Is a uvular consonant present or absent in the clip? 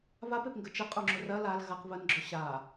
present